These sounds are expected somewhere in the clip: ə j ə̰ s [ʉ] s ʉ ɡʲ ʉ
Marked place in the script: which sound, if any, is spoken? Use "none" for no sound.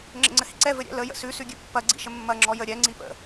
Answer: ʉ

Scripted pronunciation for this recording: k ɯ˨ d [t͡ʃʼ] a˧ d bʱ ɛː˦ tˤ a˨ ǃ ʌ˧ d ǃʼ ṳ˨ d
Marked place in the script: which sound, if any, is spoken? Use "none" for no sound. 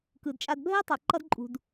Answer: t͡ʃʼ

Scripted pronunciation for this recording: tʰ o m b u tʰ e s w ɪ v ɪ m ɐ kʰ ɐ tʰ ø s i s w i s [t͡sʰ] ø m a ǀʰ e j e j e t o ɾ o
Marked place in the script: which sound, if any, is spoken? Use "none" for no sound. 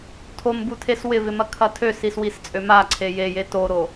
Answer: t͡sʼ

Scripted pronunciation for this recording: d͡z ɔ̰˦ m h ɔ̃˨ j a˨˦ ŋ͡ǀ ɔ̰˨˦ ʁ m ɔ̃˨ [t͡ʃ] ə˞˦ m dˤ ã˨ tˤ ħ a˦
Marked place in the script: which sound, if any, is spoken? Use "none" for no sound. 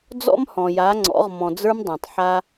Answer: d͡z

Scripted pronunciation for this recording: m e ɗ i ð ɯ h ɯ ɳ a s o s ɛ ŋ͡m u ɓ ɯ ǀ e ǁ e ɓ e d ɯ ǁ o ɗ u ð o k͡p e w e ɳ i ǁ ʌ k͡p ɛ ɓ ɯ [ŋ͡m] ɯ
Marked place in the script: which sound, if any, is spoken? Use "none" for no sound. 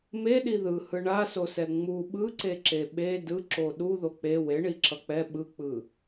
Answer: k͡p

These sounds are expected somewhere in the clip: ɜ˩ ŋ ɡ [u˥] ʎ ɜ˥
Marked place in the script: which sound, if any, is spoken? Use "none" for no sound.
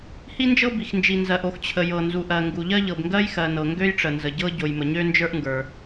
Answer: u˩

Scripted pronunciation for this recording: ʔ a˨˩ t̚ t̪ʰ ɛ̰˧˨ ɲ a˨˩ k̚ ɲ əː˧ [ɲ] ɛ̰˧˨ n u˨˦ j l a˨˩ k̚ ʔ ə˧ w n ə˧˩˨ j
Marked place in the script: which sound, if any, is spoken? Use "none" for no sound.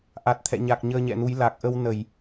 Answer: ɲ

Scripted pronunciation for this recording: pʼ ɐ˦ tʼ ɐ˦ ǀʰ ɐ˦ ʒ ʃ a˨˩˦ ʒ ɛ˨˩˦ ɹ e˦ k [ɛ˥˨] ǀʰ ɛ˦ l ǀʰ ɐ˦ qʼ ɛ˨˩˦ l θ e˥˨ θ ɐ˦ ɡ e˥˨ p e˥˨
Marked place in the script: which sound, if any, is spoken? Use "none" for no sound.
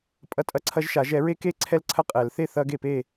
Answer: e˥˨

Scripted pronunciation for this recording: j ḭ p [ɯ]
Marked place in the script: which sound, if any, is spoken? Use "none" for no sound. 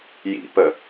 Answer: ə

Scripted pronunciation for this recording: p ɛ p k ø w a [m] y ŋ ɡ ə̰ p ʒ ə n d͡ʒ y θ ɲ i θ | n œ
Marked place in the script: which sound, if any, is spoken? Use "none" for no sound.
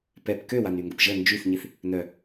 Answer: n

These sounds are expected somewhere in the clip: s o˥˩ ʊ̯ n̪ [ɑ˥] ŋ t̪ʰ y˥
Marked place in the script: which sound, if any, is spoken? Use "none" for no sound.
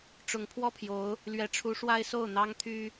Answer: ɑ˥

